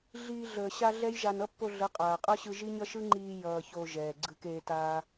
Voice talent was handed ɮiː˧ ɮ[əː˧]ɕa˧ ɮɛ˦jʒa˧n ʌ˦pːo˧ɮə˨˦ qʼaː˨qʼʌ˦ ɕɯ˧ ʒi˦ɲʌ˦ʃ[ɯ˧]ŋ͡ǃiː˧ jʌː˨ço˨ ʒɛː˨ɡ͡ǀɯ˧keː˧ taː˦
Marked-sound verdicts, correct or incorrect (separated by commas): incorrect, incorrect